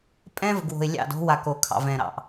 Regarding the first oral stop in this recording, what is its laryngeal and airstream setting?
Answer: ejective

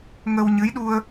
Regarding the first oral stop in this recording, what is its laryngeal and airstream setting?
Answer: implosive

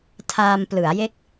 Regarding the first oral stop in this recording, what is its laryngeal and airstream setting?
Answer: aspirated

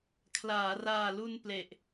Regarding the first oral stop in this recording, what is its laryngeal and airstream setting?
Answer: aspirated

